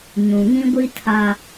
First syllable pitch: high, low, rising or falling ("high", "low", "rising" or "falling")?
low